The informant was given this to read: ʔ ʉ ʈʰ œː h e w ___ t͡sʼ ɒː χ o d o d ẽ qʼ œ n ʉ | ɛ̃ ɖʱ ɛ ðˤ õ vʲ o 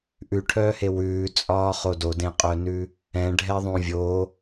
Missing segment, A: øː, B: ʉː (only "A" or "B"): B